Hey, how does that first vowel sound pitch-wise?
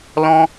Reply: high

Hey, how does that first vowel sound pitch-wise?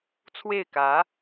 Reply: falling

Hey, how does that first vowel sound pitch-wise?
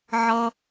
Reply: high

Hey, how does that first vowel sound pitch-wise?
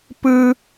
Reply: high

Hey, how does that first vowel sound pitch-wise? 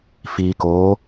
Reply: low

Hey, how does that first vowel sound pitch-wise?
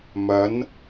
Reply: rising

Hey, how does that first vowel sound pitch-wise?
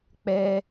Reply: high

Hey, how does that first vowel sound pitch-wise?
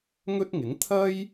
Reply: high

